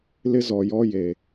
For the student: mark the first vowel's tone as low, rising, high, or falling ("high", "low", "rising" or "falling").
high